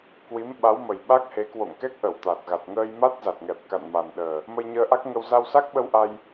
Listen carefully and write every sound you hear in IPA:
k w i˨˦ m ɓ a˨˦ w m ə˨˩ j ɓ a˦˥ k̚ h e˨˦ k w o̰˧˨ ŋ k ɛ˦˥ k̚ ʔ ə˧˩ w t̪ a˨˩ t̚ ɣ a˨˩ t̚ ŋ əː˧ j m a˦˥ t̚ z a˨˩ t̚ ŋ ɛ˨˩ p̚ k a̰˧˨ n m a˨˩ n ɗ əː˨˩ | m ə˧ j ɲ əː˧ ʔ a˦˥ k̚ ŋ ə˧ w z a˧ w s a˦˥ k̚ ɓ ə˧ w ʔ a˧ j

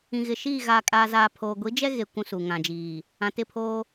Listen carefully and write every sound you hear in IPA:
ĩ˨ ɣ ɪ˨ ʃ iː˦˨ ɣ aː˨ kʼ aː˨ z aː˨ pʰ oː˨ ɡʷ i˨˦ d͡ʒ ɛ˦ ɣ e˨ kʷ ũ˦ s u˨ ŋ ã˨ d͡ʒ iː˨ | ã˨ t ɪ˦˨ pʰ oː˦

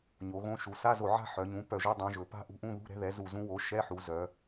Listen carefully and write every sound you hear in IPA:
ɲ o˩˧ ɣ õ˧˥ ʃ u˩˧ s a˧˥˧ z o˧˩ ʕ a̤˥˧ ħ œ˩˧ ɲ ũ˩˥ p œ˧˩ ʒ o˧˥˧ dˤ œ̃˧˥ ʒ ɵ˩˧ p a̤˥˧ ʔ ṳ˧˥ ʔ ũ˧˥˧ ð ṳ˧˥˧ ɾ ɛ̤˧˥ ð ɛ˩˥ z u˧˩ z ũ˧˥ w o˩˥ ʃ ɛ˧˥˧ ħ u˩˧ z œ˩˧

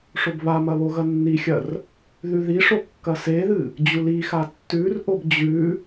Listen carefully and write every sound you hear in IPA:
ʂ o b β a m ɐ β o ɣ ɐ nː i xʲ ɐ r | ð ʉ ð i ʂ o kː ɐ s e ð ɨ | d͡ʑ u l i x a tː ʉ r ʔ o b d͡ʑ ʉ

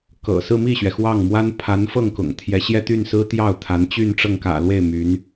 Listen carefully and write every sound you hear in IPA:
k ɤ̰˨˩ s ɹ̩˥˧ m i˥˩ ɕ ɥ ɛ˩ x w ɑ˥˩ ŋ m w a˥ n pʰ a˧˥ n f ɤ˥˩ ŋ k ʊ̰˨˩ ŋ t̪ʰ j ɛ˧˥ ɕ j ɛ˥˧ t̪ y˥˩ n s ɹ̩˥ t̪ j ɑ˥˩ ʊ̯ t̪ʰ a˧˥ n t͡ɕ y˥˧ n ʈ͡ʂ ɤ˥˩ ŋ k ä̰˨˩ l w e˥˩ ɪ̯ m y˧˥ n

